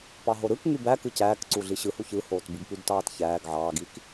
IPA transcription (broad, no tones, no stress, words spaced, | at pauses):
pɑɦoɾɯk ŋybæ kɯcæːkǀu ɮiɕɯhu çɯhoːt bɯɡpydtɑːtçæːɡ ʕɑːɡik